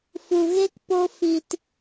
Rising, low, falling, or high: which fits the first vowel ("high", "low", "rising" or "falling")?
low